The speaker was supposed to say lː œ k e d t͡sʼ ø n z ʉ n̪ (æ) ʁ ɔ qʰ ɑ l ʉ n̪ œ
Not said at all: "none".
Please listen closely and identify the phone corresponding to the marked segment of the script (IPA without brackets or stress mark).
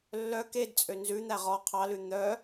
æ